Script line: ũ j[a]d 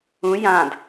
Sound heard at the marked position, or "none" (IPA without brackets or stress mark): ã